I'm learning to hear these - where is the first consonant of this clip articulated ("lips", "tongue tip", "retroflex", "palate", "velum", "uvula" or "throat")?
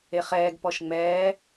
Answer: uvula